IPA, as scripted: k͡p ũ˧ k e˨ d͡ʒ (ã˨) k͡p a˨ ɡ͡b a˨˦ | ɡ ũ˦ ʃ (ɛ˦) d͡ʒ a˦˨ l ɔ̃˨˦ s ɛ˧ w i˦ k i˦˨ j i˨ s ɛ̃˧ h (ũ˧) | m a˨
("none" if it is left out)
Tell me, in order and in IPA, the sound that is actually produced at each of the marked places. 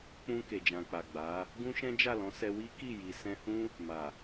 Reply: ã˨, ɛ̃˦, ũ˦

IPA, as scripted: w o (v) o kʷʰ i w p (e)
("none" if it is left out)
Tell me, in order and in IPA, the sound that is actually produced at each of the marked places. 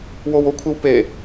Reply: w, e

